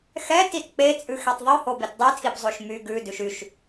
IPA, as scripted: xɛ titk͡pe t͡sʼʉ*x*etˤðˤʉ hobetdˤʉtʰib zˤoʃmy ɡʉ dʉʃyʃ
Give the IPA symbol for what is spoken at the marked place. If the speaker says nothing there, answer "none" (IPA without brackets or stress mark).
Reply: x